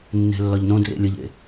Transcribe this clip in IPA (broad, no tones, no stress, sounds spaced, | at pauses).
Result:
nː e̤ lː ɒ ʎ n õ d r ḛ lʲ ə ʎ ḛ